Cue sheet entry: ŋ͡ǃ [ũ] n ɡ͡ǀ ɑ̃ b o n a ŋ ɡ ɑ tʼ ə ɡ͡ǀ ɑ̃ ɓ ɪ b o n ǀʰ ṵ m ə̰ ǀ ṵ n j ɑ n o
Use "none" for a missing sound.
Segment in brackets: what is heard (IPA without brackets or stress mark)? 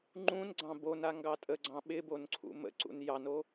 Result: ũ